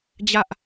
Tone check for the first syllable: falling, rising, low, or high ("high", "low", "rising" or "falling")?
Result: high